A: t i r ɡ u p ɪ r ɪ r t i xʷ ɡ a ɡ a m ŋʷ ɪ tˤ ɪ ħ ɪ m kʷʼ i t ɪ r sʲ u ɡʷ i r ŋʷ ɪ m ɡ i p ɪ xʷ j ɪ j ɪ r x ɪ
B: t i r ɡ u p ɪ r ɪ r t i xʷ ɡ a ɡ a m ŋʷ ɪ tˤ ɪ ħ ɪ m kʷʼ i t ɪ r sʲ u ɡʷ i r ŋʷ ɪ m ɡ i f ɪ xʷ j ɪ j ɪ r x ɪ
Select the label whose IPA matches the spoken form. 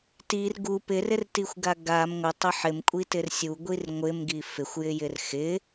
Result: B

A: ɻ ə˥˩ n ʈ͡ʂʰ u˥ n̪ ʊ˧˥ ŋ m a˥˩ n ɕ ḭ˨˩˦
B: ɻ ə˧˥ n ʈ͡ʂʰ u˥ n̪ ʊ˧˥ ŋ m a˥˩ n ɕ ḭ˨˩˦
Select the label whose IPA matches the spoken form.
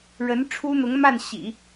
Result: B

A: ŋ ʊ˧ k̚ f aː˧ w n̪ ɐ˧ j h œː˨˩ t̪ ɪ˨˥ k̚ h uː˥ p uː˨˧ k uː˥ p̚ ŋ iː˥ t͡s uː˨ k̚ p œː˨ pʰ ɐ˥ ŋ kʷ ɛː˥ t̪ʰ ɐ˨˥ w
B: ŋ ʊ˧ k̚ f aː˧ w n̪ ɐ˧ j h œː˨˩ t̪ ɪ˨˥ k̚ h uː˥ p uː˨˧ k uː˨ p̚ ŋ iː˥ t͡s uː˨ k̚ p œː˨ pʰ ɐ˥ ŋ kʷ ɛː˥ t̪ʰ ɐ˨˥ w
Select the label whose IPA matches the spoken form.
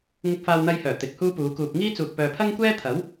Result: B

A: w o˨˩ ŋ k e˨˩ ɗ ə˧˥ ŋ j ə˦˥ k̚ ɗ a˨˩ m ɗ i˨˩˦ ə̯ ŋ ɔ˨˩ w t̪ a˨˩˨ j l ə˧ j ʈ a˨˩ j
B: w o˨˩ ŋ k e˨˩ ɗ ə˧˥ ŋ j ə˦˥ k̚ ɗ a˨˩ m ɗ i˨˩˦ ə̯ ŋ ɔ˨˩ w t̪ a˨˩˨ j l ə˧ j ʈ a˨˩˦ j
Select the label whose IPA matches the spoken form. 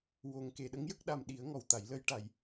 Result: A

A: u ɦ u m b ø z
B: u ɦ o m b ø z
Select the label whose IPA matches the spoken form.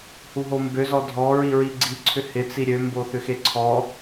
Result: B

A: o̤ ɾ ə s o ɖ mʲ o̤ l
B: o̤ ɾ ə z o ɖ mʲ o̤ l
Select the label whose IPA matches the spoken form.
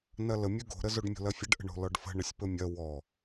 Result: B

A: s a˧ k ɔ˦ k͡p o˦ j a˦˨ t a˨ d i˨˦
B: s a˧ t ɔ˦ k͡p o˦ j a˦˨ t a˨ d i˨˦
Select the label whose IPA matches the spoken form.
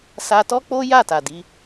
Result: B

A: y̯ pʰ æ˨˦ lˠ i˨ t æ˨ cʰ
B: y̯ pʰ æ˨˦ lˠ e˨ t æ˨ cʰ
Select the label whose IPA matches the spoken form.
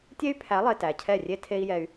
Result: B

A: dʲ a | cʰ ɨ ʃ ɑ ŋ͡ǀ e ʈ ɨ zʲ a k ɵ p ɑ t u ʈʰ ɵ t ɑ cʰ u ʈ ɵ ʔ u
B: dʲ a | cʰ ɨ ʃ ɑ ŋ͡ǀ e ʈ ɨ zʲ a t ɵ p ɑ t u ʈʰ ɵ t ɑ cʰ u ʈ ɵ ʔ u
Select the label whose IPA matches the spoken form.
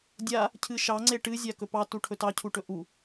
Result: A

